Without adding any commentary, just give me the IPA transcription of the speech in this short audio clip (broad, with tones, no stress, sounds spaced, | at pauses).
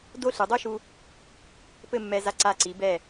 d o˥ ɬ ɨ˩˧ dˤ o˥ ʃ u˧ | p ɘ˥˧ mː ɛ˧ z a˧ ǀ a˧˩ ǀ i˩˧ b ɛ˧˩